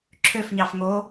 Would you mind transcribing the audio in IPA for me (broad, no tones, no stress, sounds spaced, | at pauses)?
ǁʰ ø f ɲ ɑ f ŋ o